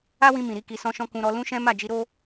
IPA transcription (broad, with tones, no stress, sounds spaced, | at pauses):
a˦ w ĩ˧ m ĩ˨ ɾ i˨˦ k i˧ s ɔ̃˦ ʃ ɔ̃˦ k ũ˧ ɾ ɔ˧ l ũ˦ ʃ ɛ̃˦ m a˦˨ d͡ʒ i˨˦ ɾ o˦